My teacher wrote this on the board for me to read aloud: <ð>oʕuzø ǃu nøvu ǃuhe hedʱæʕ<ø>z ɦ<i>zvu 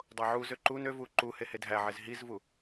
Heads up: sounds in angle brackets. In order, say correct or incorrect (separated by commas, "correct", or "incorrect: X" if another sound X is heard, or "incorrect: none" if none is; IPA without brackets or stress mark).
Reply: incorrect: dˤ, incorrect: e, correct